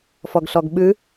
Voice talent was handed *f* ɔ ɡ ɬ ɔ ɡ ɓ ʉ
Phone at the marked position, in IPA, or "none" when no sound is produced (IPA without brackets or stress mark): f